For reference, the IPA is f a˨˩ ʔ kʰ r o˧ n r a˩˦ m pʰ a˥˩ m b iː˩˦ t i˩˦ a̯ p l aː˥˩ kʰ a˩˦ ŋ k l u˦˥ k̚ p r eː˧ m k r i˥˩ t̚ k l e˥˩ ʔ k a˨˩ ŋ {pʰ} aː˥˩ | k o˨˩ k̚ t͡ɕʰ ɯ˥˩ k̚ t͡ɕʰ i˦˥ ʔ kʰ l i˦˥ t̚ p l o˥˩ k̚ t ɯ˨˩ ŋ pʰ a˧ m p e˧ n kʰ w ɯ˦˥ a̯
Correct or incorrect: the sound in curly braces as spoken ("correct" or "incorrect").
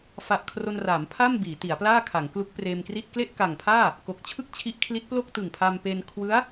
correct